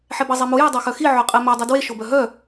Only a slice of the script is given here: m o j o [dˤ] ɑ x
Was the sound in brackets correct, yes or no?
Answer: yes